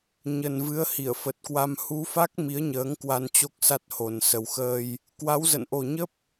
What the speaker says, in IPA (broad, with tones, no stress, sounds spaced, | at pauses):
ɲ ə˨˩ n v ɨ˨˦ ə̯ h i˧˩ ə̯ f ə˨˩ t̚ k w a˧ m h u˨˦ f a˦˥ k̚ m i˨˦ ə̯ ɲ əː˨˦ ŋ k w a˧ n t͡ɕ o˦˥ k̚ s a˦˥ t̚ h o˨˩ n s ə˨˩ w x əː˧ j | k w a˨˦ w z ə̰˧˨ n ʔ o˨˩ ɲ ə˦˥ p̚